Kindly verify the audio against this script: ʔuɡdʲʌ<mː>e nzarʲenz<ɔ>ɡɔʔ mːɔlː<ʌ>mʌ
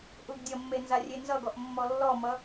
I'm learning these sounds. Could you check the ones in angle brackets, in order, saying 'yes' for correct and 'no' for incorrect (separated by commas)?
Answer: yes, no, no